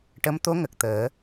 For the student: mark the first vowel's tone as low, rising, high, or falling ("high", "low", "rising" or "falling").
rising